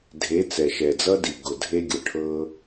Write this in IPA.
dʱ e˨˦ t͡s ɛ˨ ʃ ɛ˨ d͡z ʌ˦ d i˨ ɡ ʊ˨ dʱ e˦ ɡʲ ɤ˨ ʈʰ ɤ˦

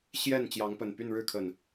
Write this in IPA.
ɕ j ɛ˥˨ n t͡ɕ j ɑ˨˦ ŋ p ə˨˩ n p y˥˨ n ɻ ɻ̩˥˨ kʰ ə˨˩ n

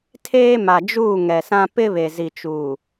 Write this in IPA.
tʰ eː˦ m a˨ d͡ʒ uː˦˨ ŋ ɛ˨ s ã˦ p ɪ˦ β e˨ z i˨ t͡ʃ uː˨

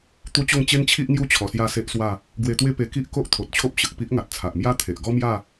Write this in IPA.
t̪ u˦ t͡ɕ o˥˧ ŋ t͡ɕ e˦ n t͡ɕʰ i˦ ʔ ŋ j u˦ t͡ɕʰ ɔ˧ s j a˥˧ s e˦ ʔ s w a˥˧ | ɡ w e˧ t̪ w e˦ p e˧ k i˦ ʔ k o˦ ʔ t̪ʰ o˨ t̚ t͡ɕʰ o˦ p̚ ɕ ə˨ k̚ p i˦ ʔ ŋ a˨ t̚ t͡sʰ a˨ ʔ m j a˦ t̪ʰ e˨ ʔ ɡ ɔ˦ m j a˥˧

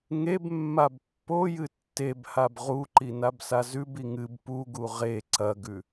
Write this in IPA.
ŋ e b mː a b pː o j ɨ tː e b h a b ʁ u ǃ i n a b s a z ʉ b i ŋ ɨ b p u ɡ u ʁ e ǀ ɐ ɡ ʉ

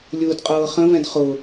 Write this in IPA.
lʲ ʊː d qʼ ɤː χ ə̃ v ɛ̃ d χ ʊ

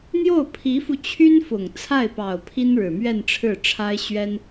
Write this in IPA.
n̪ j o˥˩ ʊ̯ pʰ i˧˥ f u˧ t͡ɕʰ y˥ n f ʊ˨˩ ŋ t͡sʰ a˥˩ ɪ̯ p ɑ˨˩ ʊ̯ pʰ i˥ n ɻ ɻ̩˨˩ m ɥ ɛ˥˧ n ʈ͡ʂʰ ɻ̩˥˩ ʈ͡ʂʰ a˥ ɪ̯ ɕ ɥ ɛ˥ n

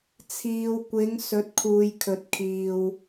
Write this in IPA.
t͡sʰ iː˨ w kʷ ɪ˨˧ ŋ s ɵ˨˥ t̚ kʰ uː˨ j kʰ ɵ˨ t̚ kʰ iː˨ w

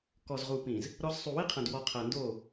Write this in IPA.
k ɔ˨ z ʁ u˨ p ĩ˨ z | ɾ ɔ˦ z sˤ u˨ w i˦ qʰ ɐ̃˨ d w ɔ˨ qʰ ɐ˨ n d o˦˨

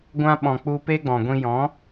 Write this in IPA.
ɡʷ ã˦ ɓ ɔ̃˨ k͡p u˧ p e˦ ɡ͡b ɔ̃˨ ɡʷ ĩ˧ j ɔ̃˨˦

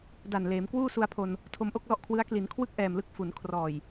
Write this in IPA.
d a˨˩ n l eː˩˦ m k w uː˥˩ s u˧ a̯ pʰ o˧ n | tʰ o˧ m ʔ o˥˩ k̚ l ɔ˥˩ ʔ kʰ w ɯ˦˥ a̯ k l i˩˦ n kʰ w ɯ˥˩ k̚ ʔ ɛː˨˩ m l ɯ˦˥ k̚ f u˩˦ n kʰ r ɔː˨˩ j

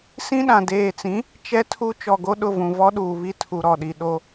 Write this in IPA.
s ĩ˦ ɗ ã˨ d eː˨ t͡s ĩ˨˦ | t͡ʃ ɛ˦ tʰ u˦ t͡ʃ ɔ˨ ɡ o˦ ɗ ʊ˦˨ v ũ˨ v ɔ˦ ɗ uː˨ β i˦ tʰ u˨ ɾ ɔ˨ ɗ i˨ ɗ o˦

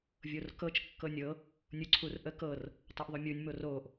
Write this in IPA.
vʲ o r k ɤ t͡ʃ kː ɤ nʲ ɤ | nʲ u ǀʰ u r ʔ ə k ɤ r | tˤ o ʔ ðˤ o mʲ u nʲ m o r o ʔ

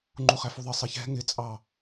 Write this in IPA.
ŋ͡ǃ u χ æ f u ðˤ ɪ sˤ ɪ ç ɛ̤ ŋ ɪ t͡sʼ ɑ

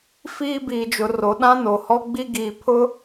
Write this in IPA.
f iː˦ b iː˨ d͡ʒ ʊ˨ r o˨ ɗ ã˦ n o˨ h ɔ˦ ɡ͡b i˦ ɡ iː˨ pʰ ʊ˦

